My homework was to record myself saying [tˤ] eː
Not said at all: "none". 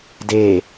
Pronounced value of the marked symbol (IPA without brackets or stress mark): d